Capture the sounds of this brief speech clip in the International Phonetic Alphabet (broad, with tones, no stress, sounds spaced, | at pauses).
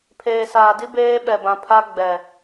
pʰ eː˨ s aː˨ d i˦ b eː˦ ɓ ɛ˨ b ã˨ pʰ a˦ ɡ͡b ɛ˨